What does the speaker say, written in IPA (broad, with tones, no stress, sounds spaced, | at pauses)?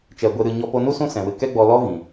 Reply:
t͡ʃ ɛ˨ ɡʷ e˧ ɾ ɨ˧ ɲ ɔ˧ p o˧ n u˦ s ũ˦ s ɛ̃˨ w ɨ˧ k ɛ˦ ɡ͡b ɔ˧ l ɔ˦ ɣ ĩ˨